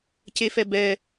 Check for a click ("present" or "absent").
absent